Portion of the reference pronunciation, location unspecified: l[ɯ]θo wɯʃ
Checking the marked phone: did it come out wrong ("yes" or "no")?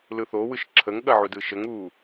no